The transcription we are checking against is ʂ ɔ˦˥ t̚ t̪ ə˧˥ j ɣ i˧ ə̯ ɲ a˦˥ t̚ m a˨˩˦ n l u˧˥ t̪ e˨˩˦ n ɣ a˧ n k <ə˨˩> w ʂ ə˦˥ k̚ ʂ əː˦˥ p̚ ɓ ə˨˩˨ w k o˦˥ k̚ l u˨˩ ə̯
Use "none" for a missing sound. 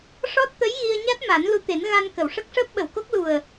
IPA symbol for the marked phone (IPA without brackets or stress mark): ə˨˩˨